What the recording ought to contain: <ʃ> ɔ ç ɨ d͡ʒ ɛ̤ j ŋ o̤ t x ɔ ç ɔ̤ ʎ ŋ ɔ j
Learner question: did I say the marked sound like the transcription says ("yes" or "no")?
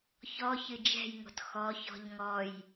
no